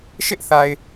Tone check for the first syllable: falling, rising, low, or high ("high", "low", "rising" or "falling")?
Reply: high